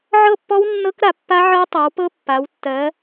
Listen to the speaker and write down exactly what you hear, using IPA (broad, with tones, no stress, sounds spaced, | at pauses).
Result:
ʕ ɤ˥˧ pː ɔ˦˥ w nː ɤ˦˥ k ɾ a˨˦ pː a˦˥ ʕ ɤ˦˥ tˤ ɤ˨˦ w p ɤ˦˥ pː a˨˦ w tː ɜ˨˦